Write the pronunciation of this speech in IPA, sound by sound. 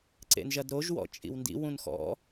ǀ ḛ n ʒ ɐ d ɾ o ʒ w ɔ̰ t͡ʃʼ ḭ w n d ḭ w ũ n x ɔ̰

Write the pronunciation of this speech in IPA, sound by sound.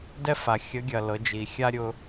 d ɛ˥ f a˩ xʲ ə˧˥ ɡʲ ɐ˩ l ɤ˩˧ d͡ʒ i˩ xʲ a˥ ɾʲ ʊ˧

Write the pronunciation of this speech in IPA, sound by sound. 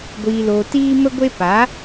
ɡʷ iː˧ l oː˧ t iː˦ m ə˦ ɡʷ e˦ p a˨˦

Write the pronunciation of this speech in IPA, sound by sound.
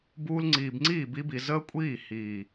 b uː˧ l ŋ͡ǀ iː˨ b ŋ͡ǀ iː˦˨ b i˧ b i˨ z əː˦ kʷʼ iː˦˨ h iː˨

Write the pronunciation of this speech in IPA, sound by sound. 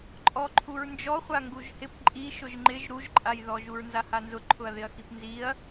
ǃʼ ɔ ǃʰ u ɹ n d͡ʒ ɔ χʷ a ŋ ɡ u ʒ h ɪ p ǃʼ i ʃ ʊ ʒ ŋ͡ǃ ɪ ʒ ɾ u ʒ ǃʼ a j ð ɔ ʒ u ɹ n z a h a n z ʊ ǃʰ ʊ ɐ̯ ð ɪ ɐ̯ x i p n z i ɐ̯

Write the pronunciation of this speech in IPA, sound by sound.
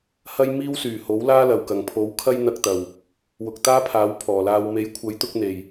h ɐ˥ j m iː˥ w s yː˨˩ h o˨˥ w l aː˥ l ɐ˨˩ w k ɐ˨˩ ŋ pʰ o˨˥ w kʰ ɐ˥ j n̪ ɐ˧ k̚ t̪ ɐ˨˩ w | w ʊ˨ k̚ t̪ aː˥ pʰ aː˨˥ w pʰ ɔː˨˩ l aː˧ w m e˨˥ j kʷʰ ɐ˨˥ j t̪ ʊ˧ k̚ n̪ e˨˩ j

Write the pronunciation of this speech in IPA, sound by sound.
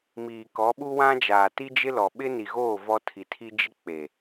m iː˨ k ɔ˨˦ ɓ u˦ w ã˦ d͡ʒ aː˨ t i˦ d͡ʒ ɪ˦ l ɔ˨ ɓ ɪ˦ n i˨ ɣ oː˦˨ v ɔ˦ tʰ i˨ tʰ i˦ d͡ʒ ɪ˦ k͡p e˨

